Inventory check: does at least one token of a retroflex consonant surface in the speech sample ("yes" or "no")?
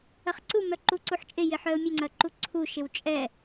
no